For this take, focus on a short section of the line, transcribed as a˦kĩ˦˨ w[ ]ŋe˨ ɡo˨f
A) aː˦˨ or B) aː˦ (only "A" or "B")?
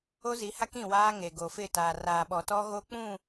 B